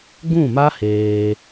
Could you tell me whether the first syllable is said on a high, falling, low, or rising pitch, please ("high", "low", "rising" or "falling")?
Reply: falling